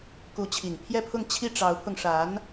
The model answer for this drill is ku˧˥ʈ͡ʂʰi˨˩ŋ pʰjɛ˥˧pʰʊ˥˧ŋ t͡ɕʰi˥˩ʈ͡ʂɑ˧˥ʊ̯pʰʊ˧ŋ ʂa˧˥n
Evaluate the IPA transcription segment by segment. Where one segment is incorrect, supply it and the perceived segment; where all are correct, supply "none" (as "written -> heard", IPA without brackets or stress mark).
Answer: ʈ͡ʂʰ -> t͡ɕʰ